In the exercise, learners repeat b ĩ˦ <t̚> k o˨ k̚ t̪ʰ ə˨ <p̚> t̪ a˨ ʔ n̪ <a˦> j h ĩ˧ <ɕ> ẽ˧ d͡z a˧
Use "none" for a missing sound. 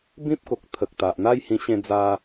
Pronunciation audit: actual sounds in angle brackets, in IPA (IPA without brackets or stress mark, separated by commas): p̚, k̚, a˦, ɕ